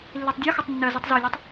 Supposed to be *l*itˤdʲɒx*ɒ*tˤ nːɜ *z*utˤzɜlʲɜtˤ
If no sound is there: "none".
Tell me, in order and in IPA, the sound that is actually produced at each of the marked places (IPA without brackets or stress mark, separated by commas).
lː, ʌ, z